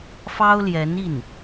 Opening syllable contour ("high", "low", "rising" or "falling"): high